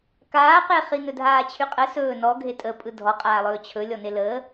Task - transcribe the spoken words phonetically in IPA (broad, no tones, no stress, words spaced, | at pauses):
kaːqeχi nɵdʱaːt͡ɕʰyqʼə sɵː nɔɡʱe tʼəpʼɯ dʱɔqʼaːlˠɵː t͡ɕʰɵ lʲɔneləː